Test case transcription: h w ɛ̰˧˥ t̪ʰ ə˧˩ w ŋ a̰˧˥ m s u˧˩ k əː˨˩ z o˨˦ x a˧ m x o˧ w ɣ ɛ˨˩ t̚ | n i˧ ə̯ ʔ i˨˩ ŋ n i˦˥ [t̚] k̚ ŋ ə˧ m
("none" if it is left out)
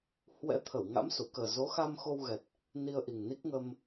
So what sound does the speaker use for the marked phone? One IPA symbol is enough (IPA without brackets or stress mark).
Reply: none